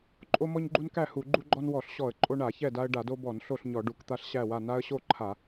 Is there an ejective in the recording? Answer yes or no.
yes